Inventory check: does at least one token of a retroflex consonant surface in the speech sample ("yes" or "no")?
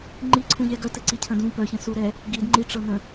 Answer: yes